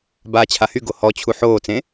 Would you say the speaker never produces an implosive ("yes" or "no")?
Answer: yes